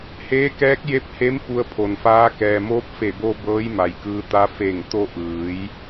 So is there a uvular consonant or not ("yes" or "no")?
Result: no